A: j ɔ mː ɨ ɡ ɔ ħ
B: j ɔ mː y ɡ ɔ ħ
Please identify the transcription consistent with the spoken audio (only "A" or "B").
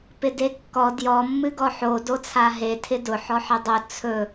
A